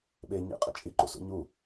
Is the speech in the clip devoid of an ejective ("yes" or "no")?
no